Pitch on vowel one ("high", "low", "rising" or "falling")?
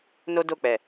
high